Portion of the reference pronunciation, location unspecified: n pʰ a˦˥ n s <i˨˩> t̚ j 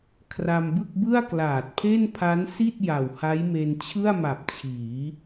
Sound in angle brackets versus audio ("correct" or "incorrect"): incorrect